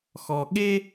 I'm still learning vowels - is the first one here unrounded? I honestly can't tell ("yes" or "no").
no